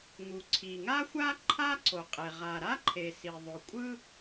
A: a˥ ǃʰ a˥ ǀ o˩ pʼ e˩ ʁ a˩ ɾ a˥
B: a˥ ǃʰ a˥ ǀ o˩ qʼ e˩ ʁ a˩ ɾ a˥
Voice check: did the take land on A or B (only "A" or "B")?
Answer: B